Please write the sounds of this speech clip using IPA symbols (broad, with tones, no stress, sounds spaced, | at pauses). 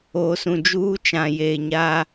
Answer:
oː˨ s ũ˨ d͡ʒ uː˦ t͡ʃ ã˨ j eː˨ ɲ aː˦